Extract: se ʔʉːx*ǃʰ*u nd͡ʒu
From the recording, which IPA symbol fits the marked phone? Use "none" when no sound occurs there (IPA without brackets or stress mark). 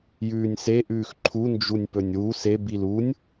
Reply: ǃʰ